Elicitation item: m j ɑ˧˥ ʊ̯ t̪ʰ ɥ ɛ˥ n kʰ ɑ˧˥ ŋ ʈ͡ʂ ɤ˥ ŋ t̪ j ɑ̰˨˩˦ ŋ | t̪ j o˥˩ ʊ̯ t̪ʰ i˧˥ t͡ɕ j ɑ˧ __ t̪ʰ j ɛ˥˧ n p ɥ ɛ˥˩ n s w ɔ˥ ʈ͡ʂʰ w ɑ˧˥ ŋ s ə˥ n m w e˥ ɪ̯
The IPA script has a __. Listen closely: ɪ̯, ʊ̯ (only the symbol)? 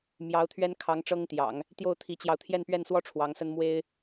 ʊ̯